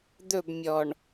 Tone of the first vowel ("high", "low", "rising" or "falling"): falling